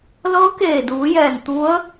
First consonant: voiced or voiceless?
voiced